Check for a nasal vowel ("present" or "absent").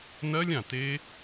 present